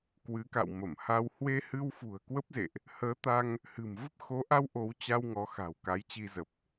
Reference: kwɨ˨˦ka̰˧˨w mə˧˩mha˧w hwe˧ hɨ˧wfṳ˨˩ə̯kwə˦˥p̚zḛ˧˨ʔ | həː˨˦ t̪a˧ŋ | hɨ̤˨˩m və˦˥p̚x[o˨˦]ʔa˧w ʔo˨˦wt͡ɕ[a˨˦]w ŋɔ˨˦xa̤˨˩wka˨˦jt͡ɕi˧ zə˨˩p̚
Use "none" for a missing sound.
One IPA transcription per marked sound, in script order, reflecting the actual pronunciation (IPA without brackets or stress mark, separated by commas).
o˨˦, a˧